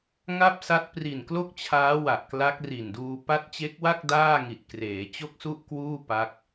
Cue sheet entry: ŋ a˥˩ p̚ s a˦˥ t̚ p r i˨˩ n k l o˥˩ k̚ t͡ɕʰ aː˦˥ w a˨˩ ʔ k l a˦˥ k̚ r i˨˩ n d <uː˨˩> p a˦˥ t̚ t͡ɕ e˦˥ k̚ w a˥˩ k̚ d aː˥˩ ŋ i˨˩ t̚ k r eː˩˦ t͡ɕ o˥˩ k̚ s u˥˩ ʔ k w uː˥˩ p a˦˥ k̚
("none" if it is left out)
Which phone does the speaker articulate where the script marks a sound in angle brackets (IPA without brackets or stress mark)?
uː˧